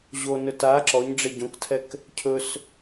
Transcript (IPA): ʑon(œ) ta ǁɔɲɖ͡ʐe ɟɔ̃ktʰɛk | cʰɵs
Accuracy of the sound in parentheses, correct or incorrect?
incorrect: ɵ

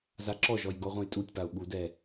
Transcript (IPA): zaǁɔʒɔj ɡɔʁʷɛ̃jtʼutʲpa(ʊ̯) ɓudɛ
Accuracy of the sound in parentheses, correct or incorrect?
correct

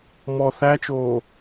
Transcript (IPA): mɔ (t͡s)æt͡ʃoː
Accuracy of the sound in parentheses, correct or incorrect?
incorrect: θ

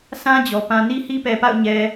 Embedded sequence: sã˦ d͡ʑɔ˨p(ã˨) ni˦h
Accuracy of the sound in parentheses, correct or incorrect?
incorrect: ã˦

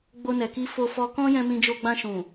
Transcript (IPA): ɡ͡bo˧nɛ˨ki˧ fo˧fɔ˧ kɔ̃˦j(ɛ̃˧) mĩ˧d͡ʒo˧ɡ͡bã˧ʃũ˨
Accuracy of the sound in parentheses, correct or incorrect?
correct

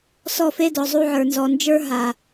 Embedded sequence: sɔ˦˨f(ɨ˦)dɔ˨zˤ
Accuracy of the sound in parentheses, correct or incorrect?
incorrect: e˦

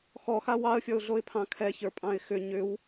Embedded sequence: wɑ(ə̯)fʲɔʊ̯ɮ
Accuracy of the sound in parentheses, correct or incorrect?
correct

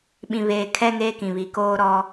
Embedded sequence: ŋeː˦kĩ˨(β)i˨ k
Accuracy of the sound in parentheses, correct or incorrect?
correct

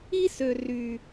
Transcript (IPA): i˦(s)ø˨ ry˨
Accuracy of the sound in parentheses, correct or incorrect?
correct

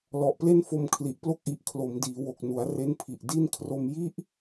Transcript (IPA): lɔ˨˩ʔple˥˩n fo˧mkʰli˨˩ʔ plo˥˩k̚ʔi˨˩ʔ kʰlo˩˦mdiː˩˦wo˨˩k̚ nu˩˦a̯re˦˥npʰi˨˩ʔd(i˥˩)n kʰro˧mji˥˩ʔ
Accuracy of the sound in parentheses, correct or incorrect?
correct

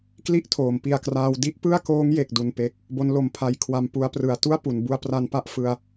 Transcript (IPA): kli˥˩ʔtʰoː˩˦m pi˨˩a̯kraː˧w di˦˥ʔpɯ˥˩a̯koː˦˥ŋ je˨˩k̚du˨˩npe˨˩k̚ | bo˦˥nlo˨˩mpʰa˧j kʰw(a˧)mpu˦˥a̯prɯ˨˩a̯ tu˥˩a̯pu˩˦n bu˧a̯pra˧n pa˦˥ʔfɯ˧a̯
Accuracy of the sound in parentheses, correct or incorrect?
correct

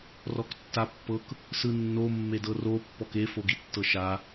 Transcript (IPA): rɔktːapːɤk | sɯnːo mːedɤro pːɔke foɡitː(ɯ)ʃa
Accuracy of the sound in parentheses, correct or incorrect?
incorrect: ɤ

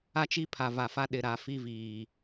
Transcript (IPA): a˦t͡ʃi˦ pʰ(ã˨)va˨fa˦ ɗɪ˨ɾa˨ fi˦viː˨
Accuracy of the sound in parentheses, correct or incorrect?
incorrect: a˨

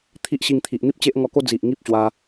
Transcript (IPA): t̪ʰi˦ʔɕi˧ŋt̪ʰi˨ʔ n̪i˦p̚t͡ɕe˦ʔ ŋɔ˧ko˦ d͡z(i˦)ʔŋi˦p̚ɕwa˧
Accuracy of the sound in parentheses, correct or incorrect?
incorrect: i˨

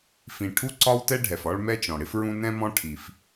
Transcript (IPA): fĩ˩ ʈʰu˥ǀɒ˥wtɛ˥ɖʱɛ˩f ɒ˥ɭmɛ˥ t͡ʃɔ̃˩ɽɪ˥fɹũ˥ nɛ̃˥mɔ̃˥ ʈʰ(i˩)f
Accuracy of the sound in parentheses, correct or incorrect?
correct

